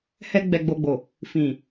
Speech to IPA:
hɛ˧ ɡ͡bɛ˨ɡ͡bo˨ɡ͡bo˨ | fĩ˨

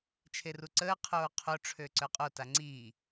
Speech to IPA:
t͡ʃʰeruǀəː qʰoːqʰo ʈ͡ʂʰøǀœqʼo taŋ͡ǀi

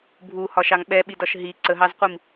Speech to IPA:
bʱuhɒʃɑŋ ɓɛɓidɒʃ ɦi ǀəɦɑzqʷim

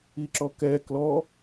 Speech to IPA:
iǁɔkɛ klɔ

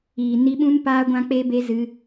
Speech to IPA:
iː˨ ni˧ɓũ˦n paː˦ɡʷã˦k͡pe˦be˦ zɨ˧

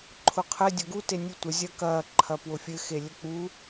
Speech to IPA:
ǃʰʊqʰɘ dʲʊɡu tenʲutʷə zʲɐkɐ ǃʰɐpwʊfʲɘ xelʲək͡pu

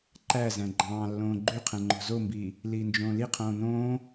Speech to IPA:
ǃæzæ̃ ɡ͡ǃɑ̃ːlːõː ɡ͡ǃyqʰɛ̃ ŋ͡ǃo̤zombiː | liːnd͡ʒõːliqʰõː nõː

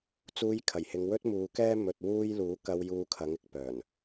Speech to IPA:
t͡suː˧jkʰɐ˨˩jhɪ˨˧ŋ wɵ˥t̚muː˨˧kɛː˥ mɵ˨t̚ wuː˥j luː˨˥kɐ˧w juː˧kʰɐ˨˥ŋɪ˥k̚ pœː˨˩n

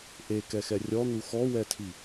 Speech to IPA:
ʔekɛxɛ rʲɔn̪u xɔwɛtʰi

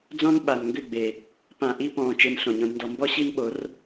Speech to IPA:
d͡zɔ̃˦n ɓa˨nŋɡʏ˦˨ɡ͡be˨ | pã˨ ʔi˦pɔ̃ː˨ t͡ʃe˧nɬõ˨ɲõ˧dndɔ˧ mbɔ˦ɕi˦nɓo˨˦r

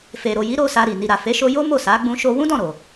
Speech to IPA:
fe˨ɾo˨ji˨˦ ɾo˧ sa˧ɾi˨ ni˨ɾa˨fe˨˦ʃo˧ jo˦mo˦˨ sa˨˦ ɡ͡bũ˧ ʃo˧wũ˦dɔ̃˦˨ ɾo˨

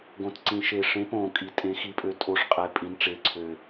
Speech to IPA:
ɡõ˨˩tǀĩ˨˩ ʃe˨˩ʂẽ˨˦põ˨˩ kʼi˨˩tʼẽ˨˦xi˨˦pʼø˨˦ tʼo˨˦ʂqʼe˨˩ pʼĩ˨˦nʈ͡ʂe˨˦ǀʰø˨˩

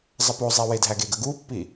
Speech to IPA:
zˤɐpozˤi wedʱæɡeɡə ɡupːi

